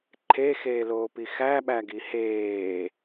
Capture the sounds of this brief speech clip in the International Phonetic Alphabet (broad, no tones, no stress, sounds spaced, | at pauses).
ǃʰ e x eː l oː p i x æ ɓ æ ɡ i h eː